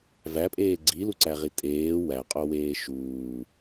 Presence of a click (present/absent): present